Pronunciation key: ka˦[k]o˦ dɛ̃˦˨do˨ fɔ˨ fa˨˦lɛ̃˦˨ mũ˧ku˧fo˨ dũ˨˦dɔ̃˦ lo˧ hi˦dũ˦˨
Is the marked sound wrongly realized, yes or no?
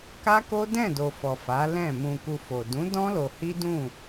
no